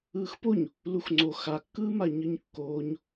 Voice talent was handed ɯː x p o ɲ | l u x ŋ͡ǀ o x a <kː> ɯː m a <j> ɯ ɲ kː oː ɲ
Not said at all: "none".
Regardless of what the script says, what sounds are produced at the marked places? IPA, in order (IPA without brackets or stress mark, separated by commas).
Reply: kː, ɲ